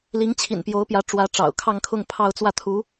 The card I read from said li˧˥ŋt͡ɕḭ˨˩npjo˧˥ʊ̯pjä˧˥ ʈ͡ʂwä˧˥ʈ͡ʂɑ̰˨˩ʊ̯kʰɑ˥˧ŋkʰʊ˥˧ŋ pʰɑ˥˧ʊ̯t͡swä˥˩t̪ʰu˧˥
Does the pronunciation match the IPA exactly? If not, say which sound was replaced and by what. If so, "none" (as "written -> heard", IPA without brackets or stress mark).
t͡ɕ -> t͡ɕʰ